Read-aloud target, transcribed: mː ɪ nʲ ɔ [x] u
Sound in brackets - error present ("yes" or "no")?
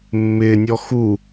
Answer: no